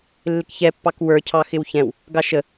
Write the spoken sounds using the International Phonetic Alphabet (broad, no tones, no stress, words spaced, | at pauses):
lːɪkçɛpːɑk wə˞ cʰɑxɪwçɛ̃w | ɡɑʃə